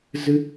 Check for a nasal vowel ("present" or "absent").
absent